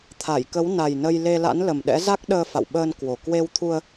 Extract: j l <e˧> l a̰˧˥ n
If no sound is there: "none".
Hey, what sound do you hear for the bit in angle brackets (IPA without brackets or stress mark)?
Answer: e˧